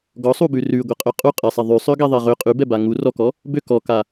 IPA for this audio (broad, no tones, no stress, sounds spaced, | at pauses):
ɡ ɔ sˤ u b ʉ r ʉ ɡʷ ɛ qʼ ø qʼ u qʼ e sˤ e ðˤ ʉ sˤ ø ɡ ɛ ðˤ e ʁ ø qʼ ʉ b ɛ b a ŋ u r ɔ k ɔ | b ø k ɔ k a